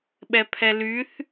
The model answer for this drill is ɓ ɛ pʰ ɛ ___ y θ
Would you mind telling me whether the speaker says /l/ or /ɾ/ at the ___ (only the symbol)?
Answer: l